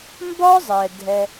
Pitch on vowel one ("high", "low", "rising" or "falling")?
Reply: high